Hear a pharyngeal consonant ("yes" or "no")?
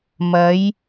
no